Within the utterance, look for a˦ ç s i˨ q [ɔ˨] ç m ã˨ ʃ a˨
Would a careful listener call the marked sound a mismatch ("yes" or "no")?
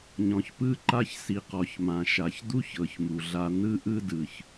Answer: no